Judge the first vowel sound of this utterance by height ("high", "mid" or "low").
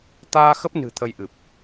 low